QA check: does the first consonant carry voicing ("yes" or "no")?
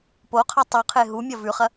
no